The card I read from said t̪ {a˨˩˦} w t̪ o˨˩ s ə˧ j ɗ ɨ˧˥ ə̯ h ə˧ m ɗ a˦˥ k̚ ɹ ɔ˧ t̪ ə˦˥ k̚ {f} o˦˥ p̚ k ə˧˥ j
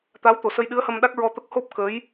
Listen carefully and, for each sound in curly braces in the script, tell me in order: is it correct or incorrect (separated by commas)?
incorrect, incorrect